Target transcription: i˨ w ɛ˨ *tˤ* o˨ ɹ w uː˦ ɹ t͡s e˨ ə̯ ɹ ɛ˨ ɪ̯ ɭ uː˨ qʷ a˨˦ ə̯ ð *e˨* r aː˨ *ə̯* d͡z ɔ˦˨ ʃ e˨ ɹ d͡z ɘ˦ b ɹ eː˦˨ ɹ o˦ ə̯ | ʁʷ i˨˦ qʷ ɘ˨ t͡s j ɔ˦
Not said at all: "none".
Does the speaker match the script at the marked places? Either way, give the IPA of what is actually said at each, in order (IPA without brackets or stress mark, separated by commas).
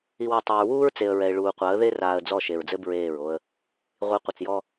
tˤ, e˦, ə̯